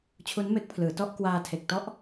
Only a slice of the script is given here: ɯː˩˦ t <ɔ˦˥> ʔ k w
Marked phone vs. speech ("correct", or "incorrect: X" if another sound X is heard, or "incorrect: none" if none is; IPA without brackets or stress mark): correct